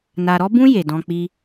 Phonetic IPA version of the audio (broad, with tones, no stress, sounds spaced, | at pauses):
n a˨ ɾ ɔ˦ b ũ˦ j e˨ d ɔ̃˧ k͡p i˦